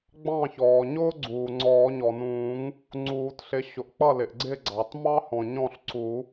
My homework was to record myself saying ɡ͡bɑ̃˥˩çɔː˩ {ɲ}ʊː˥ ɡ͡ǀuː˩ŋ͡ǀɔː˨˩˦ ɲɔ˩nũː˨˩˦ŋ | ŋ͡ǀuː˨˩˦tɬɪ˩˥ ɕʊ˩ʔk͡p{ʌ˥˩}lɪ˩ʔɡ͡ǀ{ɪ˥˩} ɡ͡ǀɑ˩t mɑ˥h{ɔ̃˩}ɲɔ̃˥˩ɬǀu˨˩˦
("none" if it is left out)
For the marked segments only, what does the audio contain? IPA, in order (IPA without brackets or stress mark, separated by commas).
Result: ɲ, ʌ˥˩, ɪ˥˩, ɔ̃˩